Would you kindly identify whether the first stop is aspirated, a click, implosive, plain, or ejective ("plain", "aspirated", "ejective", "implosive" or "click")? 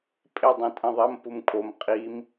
ejective